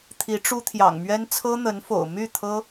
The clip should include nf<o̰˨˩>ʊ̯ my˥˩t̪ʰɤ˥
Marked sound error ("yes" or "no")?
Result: no